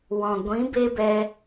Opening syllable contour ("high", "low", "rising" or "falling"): low